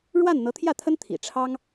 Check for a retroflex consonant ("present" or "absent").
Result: present